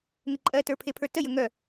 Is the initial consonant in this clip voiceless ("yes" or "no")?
no